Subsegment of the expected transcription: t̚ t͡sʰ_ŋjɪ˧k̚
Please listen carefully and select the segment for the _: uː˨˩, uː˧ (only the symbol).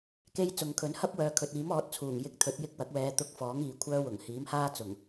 uː˨˩